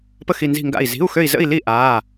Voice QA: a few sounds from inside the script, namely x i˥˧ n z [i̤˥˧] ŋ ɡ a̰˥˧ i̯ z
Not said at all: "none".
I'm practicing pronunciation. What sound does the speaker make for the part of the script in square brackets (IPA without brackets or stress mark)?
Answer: i̤˥˧